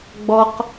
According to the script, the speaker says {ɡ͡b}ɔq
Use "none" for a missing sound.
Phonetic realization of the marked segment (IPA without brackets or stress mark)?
ɡ͡b